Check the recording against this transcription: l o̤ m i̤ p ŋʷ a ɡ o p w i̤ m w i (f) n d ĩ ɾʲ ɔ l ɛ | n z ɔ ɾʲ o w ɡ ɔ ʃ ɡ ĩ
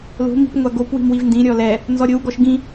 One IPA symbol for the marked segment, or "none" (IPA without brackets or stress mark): v